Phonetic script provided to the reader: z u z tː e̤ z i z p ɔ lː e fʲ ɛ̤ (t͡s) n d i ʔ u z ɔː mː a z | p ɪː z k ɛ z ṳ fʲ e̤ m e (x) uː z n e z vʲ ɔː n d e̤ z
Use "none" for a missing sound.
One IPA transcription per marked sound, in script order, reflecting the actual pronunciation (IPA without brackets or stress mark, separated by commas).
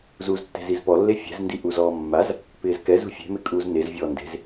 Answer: z, kʼ